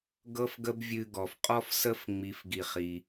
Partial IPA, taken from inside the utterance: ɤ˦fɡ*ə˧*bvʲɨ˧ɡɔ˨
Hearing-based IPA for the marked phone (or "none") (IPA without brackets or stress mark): ə˦